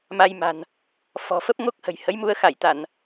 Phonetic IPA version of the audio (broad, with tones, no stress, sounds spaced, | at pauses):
m a˧ j m a̤˨˩ n | f ɔ̤˨˩ f ə˦˥ p̚ ŋ o˦˥ k̚ h ə̤˨˩ j h ə˨˦ j m u˧ ə̯ x a˧˩ j t̪ a˧˩˨ n